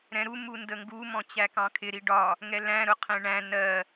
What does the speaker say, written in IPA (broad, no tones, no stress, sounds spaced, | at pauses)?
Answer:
ɾ ɛ̃ ɾ u m u n d ə ŋ ɡ u m ɔ̃ t͡ɕ æ k ɑ̃ kʰ ɪ ɾ i ɖ ɒ | ŋ ɛ l æ̃ ɾ ʊ qʰ ɛ̃ ɳ æ̃ n ɜ